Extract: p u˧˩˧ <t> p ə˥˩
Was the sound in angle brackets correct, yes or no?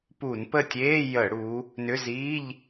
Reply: no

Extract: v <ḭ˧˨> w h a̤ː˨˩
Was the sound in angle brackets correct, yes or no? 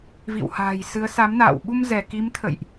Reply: yes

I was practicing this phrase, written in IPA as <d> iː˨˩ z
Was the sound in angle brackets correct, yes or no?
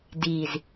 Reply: yes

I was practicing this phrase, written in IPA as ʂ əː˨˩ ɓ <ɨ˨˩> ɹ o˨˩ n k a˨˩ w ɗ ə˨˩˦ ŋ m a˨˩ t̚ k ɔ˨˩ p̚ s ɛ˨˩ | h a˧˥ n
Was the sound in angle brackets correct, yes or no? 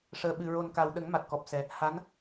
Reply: yes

